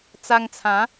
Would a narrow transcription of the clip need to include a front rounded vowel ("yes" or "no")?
no